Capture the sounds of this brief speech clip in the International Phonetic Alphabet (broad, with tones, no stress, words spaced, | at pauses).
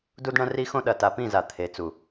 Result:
du˦dɳɐ̃˦ri˦xõ˦ ɗɐ˨ta˨pĩ˦˨za˨ t̪ʰe˨t͡su˨